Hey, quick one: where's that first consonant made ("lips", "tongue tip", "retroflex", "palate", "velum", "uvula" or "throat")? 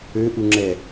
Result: throat